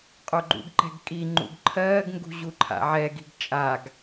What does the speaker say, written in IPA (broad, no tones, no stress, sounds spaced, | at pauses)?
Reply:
qʼ o ɡ͡ǃ ṵ ɡ ǃ ɛ̤ ɡ kʼ i ŋ͡ǃ ṵ ɡ ǃʰ ɜː ɡ ŋ ɡ ṳ ʑ u ǃʰ a̰ ʕ ɛ ɡ i̤ ɡ t͡ʃʼ a ɡ